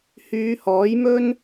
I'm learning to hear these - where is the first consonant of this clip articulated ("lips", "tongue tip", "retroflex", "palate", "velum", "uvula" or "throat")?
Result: throat